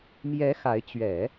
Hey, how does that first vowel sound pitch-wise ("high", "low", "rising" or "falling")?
rising